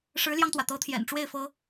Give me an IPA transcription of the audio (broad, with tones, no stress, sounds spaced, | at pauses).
ʂ ɻ̩˧˥ l j ɑ˧ ŋ t̪ w ä˩ t̪ ɤ˧˥ t̪ʰ j ɛ̰˨˩ n ʈ͡ʂ w e˥˩ ɪ̯ f ɤ˥